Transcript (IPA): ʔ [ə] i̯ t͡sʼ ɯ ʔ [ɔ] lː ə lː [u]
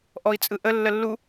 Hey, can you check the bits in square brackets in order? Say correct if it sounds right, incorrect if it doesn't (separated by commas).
incorrect, incorrect, correct